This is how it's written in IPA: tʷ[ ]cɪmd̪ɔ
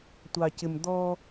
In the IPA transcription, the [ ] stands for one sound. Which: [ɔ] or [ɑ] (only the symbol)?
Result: ɑ